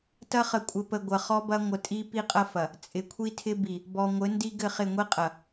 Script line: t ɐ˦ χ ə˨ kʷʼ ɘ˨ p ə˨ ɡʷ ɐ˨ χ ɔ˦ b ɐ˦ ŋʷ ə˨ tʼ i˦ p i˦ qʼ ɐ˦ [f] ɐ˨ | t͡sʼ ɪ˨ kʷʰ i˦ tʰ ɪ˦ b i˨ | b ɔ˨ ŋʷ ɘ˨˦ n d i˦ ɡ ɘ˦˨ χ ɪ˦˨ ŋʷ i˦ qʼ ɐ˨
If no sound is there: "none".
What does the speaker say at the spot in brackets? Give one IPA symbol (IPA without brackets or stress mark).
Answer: f